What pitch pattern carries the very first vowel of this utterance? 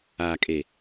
low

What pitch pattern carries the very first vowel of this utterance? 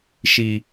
high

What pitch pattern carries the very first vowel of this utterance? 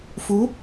rising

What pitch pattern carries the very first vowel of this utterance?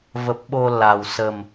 low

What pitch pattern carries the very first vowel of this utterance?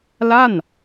falling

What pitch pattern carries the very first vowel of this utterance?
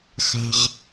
high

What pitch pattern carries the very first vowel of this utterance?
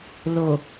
low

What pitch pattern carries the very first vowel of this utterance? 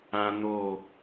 high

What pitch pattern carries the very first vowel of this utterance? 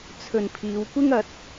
low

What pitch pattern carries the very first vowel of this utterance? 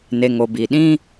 low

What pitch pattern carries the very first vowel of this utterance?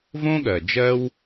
high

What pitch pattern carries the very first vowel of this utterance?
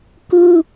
high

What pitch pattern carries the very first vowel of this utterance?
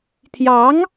rising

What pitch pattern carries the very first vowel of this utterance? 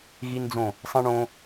high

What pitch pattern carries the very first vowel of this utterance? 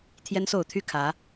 high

